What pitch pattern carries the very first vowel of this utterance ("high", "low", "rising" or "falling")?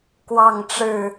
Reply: falling